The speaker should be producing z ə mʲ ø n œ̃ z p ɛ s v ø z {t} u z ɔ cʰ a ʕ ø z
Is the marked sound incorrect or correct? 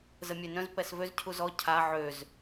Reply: incorrect